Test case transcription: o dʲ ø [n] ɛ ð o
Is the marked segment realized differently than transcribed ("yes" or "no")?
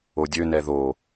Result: no